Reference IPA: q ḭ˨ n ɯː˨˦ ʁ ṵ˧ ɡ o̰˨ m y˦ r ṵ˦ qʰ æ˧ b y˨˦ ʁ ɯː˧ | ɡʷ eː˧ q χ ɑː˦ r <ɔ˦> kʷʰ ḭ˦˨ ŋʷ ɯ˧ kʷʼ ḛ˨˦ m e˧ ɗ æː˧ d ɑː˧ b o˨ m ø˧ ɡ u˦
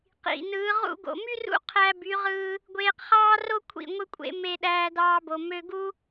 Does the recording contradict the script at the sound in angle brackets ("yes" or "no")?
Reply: yes